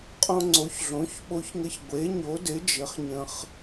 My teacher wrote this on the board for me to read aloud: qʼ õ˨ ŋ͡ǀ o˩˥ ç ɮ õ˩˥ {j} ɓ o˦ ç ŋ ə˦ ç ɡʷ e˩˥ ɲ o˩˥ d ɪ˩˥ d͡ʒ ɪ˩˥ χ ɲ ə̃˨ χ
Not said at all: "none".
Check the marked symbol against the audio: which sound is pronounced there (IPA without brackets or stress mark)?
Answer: ç